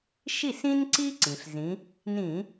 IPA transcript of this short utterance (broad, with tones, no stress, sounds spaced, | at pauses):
ʃ i˥˩ s ĩ˥ n ǀ i˥ ǀ ĩ˩ ɬ z ĩ˨˦ | n ĩ˧˩˧